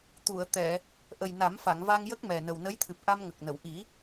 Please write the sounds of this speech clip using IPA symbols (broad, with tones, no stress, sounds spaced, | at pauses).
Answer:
t̪ u˨˩˨ ə̯ t̪ ɛ˨˩˨ | ʔ ə˨˩ j n a˨˩˦ m f a˨˩˨ ŋ v a˧ ŋ j ə˦˥ k̚ m ɛ˨˩ n ə˨˩ w n ə˧˥ j t̪ʰ ɨ˨˩ p̚ ʔ a˧ m ŋ ə˨˩ k̚ n ə˨˩˨ w ʔ i˨˩˦